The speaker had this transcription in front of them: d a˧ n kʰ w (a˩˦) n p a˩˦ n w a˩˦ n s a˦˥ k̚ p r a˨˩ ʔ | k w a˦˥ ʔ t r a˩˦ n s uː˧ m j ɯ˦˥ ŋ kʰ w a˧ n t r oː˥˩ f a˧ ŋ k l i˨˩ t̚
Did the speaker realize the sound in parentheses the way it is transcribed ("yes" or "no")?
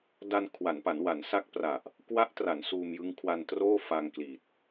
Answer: yes